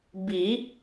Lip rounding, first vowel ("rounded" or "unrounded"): unrounded